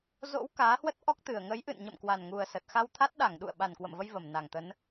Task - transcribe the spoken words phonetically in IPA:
z o̰˧˥ w k aː˨˦ h w ə˦˥ t̚ ʔ ɔ˦˥ k̚ t̪ ɨ˨˩ ə̯ ŋ ə˨˦ j ʔ ɨ̰˧˨ n ɲ ə̰˧˨ m k w a˨˩ n ŋ u˨˩ ə̯ s ə˨˩ t̚ x a˧ w t̪ʰ a˦˥ t̚ ɗ a˧˩ ŋ ɗ ṵ˧˨ ə̯ ɓ a˨˩ n k w ə̰˧˨ m v ə˧ j v ə˧˩ m n a˨˩ ŋ t̪ ə˨˦ n

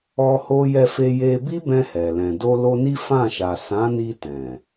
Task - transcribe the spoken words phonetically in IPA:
ɔ˦ h o˦ j ɛ˧ f e˧ j e˧ b i˦ b ɛ̃˧ h ɛ˨ l ɛ̃˨ d o˧ l o˧ n i˦ f ã˦˨ ʃ a˨ s ã˨˦ n i˧ t ɛ̃˨

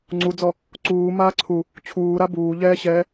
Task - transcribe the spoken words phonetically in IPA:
ŋ͡ǀ u d͡z ɔ | ǀ uː m aː ǀʰ u | t͡ɕʰ uː ɾ a b uː ʎ ɛː ɕ ɛː

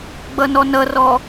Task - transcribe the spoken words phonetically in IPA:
ɡ͡b ʌ n ɔ n ʌ r ɔ

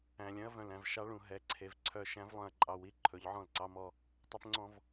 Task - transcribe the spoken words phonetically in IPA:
æ̃˨ lʲ œ̃˦ ɐ̯ v œ̃˨ l æ̃˨ v ʃ ɑ˦ ɭ ũ˨ ɦ ɛ˨˦ ǀʰ e˨ v ǀʰ œ˦˨ ʃ æ̃˦ v lˠ œ̃˨ ɐ̯ ǃʼ ɑ˨ w i˦ ǃʰ ɵ˨˦ ʎ ʕ ɔ̃˦˨ l ǀ ɑ˦ m ɔ˦ | tˤ ɛ˦ p ŋ͡ǀ ɔ̃˦ v

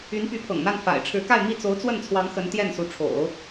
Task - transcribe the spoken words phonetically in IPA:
y˧˥ n p y˧˥ pʰ ɤ̰˨˩ ŋ n̪ a˥˩ n f a̰˨˩ ɪ̯ ʈ͡ʂʰ ɻ̩˧˥ k a˥˧ ɪ̯ m i˥˩ t͡s o˧˥ ʊ̯ t͡s w ə˥˩ n t͡sʰ w ɑ˧˥ ŋ x ə˧˥ n t̪ j ɛ˥˩ n s u˧˥ ʈ͡ʂʰ o̰˨˩˦ ʊ̯

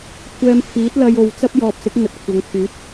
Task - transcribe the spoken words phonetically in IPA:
kʷʰ ɛː˧ m pʰ iː˨˥ t̚ l ɐ˧ j o˨ w t͡s ɐ˥ p̚ j ɔː˨ p̚ s ɪ˨˥ k̚ ŋ ɵ˧ t̚ kʷʰ ɐ˨˧ ŋ kʰ yː˨˥ t̚

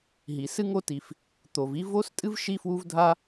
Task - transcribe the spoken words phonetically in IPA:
ɦ i˩ s ɨ˥ ŋ o˥ t i˩ f | t̪ o˩ v i˥ v o˥ s tʼ ɨ˥ v ʃ i˥ f w u˥ v dʱ a˥

